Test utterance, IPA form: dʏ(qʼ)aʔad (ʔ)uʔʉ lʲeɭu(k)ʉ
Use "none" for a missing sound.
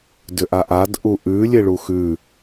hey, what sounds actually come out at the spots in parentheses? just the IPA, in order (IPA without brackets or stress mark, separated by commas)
ʔ, ʔ, x